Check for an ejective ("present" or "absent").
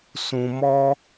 absent